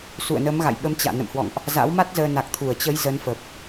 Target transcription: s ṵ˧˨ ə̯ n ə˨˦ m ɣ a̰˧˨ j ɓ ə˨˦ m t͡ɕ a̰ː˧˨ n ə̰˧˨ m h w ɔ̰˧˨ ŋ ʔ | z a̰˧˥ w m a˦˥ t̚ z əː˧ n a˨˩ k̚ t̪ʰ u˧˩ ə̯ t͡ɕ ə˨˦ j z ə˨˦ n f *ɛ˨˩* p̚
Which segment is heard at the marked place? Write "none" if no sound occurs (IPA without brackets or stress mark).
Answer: ə˨˩